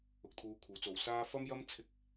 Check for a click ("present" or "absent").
absent